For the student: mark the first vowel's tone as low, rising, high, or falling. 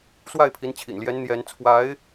falling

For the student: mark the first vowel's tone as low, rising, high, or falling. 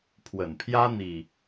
low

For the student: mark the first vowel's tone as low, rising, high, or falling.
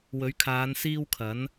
rising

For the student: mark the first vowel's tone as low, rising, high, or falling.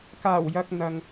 low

